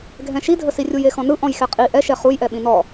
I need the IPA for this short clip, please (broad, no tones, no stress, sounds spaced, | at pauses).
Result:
ɡʱ ɛ̃ ʃ i dʱ ə s i rʲ u j e x ɔ̃ n ɯ ʔ ɔ̃ j x ɛ qʼ i ʔ ɛ ʃ ɛ χ u j ʔ ɛ ɓ ĩ n ɔ